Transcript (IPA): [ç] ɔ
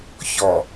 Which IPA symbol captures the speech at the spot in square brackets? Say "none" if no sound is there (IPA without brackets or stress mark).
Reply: ç